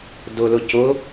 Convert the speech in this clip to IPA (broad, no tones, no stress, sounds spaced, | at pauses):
d ʊ l ʊ c ʊ